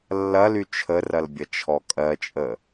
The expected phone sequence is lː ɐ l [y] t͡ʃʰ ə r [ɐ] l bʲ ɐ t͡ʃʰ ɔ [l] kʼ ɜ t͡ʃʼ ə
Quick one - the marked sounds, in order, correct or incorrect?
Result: correct, correct, incorrect

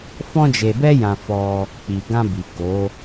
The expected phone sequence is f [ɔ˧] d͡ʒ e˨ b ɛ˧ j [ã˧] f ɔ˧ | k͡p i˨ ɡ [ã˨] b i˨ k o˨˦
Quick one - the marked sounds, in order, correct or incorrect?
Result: incorrect, incorrect, incorrect

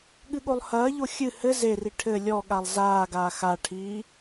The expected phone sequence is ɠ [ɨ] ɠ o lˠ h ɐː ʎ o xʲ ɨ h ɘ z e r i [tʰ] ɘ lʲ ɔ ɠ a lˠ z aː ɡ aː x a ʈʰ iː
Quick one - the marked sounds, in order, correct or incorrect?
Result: correct, incorrect

